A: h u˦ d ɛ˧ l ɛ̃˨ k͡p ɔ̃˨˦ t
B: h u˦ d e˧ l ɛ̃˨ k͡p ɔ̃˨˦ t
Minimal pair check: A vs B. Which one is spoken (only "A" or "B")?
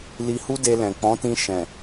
B